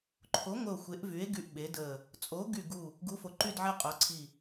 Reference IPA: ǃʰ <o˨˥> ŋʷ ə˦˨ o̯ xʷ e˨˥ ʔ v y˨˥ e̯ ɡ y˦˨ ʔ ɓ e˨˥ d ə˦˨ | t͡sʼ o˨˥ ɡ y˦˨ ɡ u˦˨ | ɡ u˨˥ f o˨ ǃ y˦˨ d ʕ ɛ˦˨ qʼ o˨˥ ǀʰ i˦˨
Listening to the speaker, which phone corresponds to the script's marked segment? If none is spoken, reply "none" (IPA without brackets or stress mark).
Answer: o˨˥